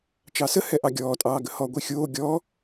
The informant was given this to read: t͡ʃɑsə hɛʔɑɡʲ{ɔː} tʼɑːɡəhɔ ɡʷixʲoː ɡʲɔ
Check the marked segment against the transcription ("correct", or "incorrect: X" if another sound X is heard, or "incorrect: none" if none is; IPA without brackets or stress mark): correct